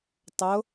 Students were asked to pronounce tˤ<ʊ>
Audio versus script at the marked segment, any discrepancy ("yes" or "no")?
no